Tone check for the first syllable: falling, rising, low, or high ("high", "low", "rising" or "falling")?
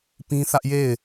high